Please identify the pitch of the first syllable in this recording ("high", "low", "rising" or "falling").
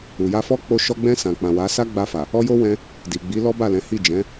low